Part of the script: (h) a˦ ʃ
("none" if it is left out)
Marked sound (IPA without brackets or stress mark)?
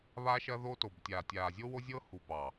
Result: β